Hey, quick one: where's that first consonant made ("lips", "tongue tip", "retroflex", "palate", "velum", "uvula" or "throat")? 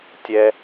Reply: tongue tip